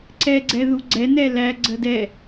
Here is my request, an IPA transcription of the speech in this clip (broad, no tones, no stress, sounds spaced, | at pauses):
ǀ ɛ ɡ͡ǀ ɛ ð u ɡ͡ǀ ɛ n ɛ l æ ɡ͡ǀ ə d ɛ